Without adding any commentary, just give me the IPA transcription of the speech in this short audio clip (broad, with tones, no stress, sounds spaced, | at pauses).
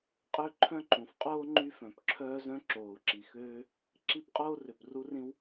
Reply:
qʼ ø˥ ǃʰ œ̃˥ ǃ ũ˩ f qʼ oː˥ ŋ͡ǃ y˥ f œ̃˩ p ǁʰ œː˥ z œ̃˥ ǁ oː˩ u̯ ǁ i˩ x øː˥ | ǁ i˥ p qʼ oː˥ r ø˩ p r u˥ r ĩ˥ w